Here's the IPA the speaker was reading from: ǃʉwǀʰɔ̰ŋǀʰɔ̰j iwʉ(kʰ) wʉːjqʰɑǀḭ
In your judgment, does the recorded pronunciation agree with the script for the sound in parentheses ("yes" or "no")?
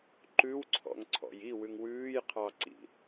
no